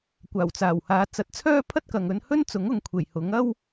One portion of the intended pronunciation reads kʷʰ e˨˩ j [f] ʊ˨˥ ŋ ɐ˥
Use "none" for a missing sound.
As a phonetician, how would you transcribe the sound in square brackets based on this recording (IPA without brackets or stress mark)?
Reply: h